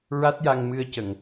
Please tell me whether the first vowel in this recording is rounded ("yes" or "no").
no